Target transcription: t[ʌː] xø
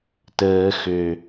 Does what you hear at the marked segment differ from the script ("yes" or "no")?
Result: yes